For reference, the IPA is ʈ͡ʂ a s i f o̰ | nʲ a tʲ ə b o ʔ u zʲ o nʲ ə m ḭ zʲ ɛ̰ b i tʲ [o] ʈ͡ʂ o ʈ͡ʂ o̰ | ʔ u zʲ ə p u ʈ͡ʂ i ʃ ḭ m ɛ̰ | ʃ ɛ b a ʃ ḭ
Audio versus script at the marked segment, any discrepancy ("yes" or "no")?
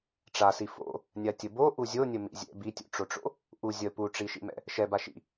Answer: yes